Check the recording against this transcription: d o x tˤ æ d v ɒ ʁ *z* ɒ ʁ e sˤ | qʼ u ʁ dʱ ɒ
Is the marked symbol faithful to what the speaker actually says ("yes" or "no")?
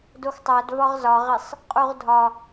yes